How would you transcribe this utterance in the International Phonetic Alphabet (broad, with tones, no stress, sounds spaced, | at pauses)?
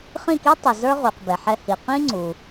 χ ĩ˥˩ k i˥ tˤ i˩ z ə˞˥ ʁ u˩ q b ɛ˩ ħ ɛ˧ h i˩ q ĩ˥ ŋ͡ǀ u˩